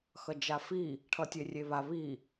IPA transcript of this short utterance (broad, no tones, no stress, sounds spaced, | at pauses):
x ʌ d͡ʒ a f i | ʈʰ ʌ tʲ e rʲ e β a β i